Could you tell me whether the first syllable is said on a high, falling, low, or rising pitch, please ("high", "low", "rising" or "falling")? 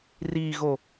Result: low